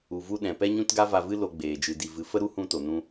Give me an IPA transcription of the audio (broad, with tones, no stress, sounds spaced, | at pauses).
u˨ v u˧ ɗ ɛ̃˨ p ɛ˦ ɲ ũ˦ t ɡ a˦ v a˧ v ɨ˦ l o˧ ɡ͡b eː˨ d͡ʒ ɨ˨ d i˨ v ɨ˨ f ə˦ ɾ u˦ h ũ˦ t o˨ n ũ˦